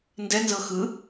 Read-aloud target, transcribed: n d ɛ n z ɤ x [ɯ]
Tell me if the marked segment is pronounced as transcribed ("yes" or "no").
yes